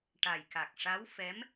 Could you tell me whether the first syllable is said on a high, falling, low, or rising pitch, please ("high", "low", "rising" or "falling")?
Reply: low